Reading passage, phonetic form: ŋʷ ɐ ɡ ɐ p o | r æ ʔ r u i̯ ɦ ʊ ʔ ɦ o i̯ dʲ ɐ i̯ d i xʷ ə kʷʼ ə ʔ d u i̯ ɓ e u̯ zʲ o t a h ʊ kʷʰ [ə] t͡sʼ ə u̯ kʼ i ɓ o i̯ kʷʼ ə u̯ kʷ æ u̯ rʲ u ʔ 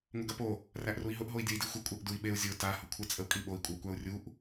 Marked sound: correct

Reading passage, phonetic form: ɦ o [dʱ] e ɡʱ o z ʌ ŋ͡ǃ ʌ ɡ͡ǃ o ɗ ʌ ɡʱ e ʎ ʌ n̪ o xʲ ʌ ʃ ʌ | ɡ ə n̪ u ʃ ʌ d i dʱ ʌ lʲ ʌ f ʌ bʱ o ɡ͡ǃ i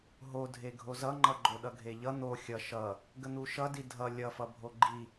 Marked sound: correct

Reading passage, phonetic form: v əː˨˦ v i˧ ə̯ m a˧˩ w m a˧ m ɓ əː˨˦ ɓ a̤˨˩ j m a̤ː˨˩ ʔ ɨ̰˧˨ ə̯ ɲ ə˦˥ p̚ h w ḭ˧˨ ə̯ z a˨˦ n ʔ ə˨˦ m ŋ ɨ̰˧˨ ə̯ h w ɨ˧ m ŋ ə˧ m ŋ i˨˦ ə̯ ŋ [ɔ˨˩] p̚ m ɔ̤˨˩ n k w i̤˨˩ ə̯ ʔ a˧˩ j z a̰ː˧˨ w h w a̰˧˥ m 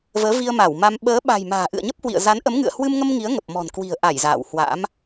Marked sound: incorrect: ə˨˩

